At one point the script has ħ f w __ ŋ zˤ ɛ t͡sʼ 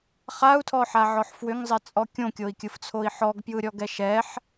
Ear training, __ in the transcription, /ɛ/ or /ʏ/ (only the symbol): ʏ